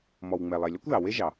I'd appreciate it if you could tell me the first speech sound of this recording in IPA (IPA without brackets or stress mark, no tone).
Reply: m